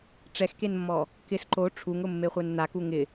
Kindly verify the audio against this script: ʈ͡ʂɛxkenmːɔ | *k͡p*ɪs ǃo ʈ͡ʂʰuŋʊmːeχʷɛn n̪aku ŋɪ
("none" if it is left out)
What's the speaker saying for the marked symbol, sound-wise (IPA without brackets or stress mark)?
k